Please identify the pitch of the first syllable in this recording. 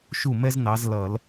falling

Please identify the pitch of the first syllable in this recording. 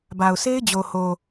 low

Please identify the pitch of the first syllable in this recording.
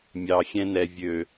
low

